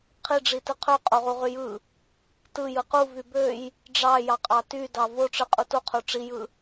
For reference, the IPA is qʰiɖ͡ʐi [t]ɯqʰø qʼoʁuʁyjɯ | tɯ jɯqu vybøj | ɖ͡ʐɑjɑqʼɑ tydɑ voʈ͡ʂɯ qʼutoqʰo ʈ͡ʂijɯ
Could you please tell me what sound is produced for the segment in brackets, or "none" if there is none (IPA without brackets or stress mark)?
t